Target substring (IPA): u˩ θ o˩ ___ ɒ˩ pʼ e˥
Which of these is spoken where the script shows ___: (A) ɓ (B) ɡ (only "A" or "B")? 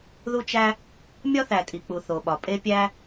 A